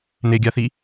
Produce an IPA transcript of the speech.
n e ɡʲ a θ i

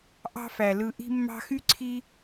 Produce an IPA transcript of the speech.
ʔ ɑ̤˦ f æ˩ l ɯ˨ ʔ i̤˦ mː ɑ̤˦ x y˥ ǀʰ i˦

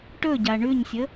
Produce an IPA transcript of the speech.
ʈ ɵ ɟ a ɳ ʉ ɲ sʲ ə

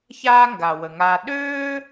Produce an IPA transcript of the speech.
ç aː˦ ŋ ɡ a˨ w ə˨ ŋ aː˧ ɗ øː˦

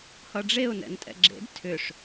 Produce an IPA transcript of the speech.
h ʌ ɖ͡ʐ e ʊ̯ n ɛ̰ n tʼ ɛ̰ ɡ͡ǁ ḛ d tʰ ʏ ʂ

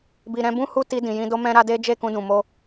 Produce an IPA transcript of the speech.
b i˨ ɾ ɛ̃˧ b ũ˦ h u˦ t i˧ d ĩ˨ j ĩ˧ d o˧ m ɛ̃˧ ɾ a˧ d e˦ d͡ʒ e˦˨ k ũ˧ d ũ˨ m o˧

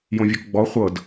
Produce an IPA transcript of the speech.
j õ vʲ o k ɡ͡b ɔ χʷ ɤ d

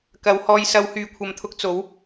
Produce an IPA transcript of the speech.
k ɐ˨˧ w h ɔː˧ j s ɐ˧ w h yː˨ kʷʰ ɐ˨ m t̪ʰ ʊ˧ k̚ t͡s o˨˥ w

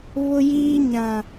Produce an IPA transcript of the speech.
β ʊ˦ j iː˦ ɲ ã˦

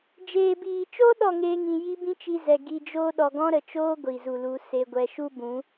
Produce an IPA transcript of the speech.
d͡ʒ eː˨ b iː˨ t͡ʃ o˦ ɗ ɔ˦˨ ŋ eː˦ ŋ ĩ˧ j i˦ b ĩ˦ t͡ʃ i˧ z ɛ˨ ɡ i˧ d͡ʒ oː˦ ɗ ɔ˨ ɡ ɔ̃˦ ɾ ə˨ t͡ʃ oː˦ ɡʷ i˨ z u˨ l u˨˦ s e˨ ɡʷ ɛ˨ ʃ u˦ b ũ˨˦

